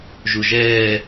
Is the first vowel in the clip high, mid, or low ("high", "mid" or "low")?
high